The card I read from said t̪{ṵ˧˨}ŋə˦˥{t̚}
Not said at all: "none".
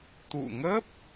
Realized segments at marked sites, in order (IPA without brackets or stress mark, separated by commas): ṵ˧˨, p̚